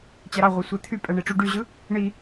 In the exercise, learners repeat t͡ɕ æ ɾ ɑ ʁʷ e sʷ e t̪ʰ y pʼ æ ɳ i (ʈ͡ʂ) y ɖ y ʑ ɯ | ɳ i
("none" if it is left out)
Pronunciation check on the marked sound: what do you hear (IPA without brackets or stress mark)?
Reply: ʈ͡ʂ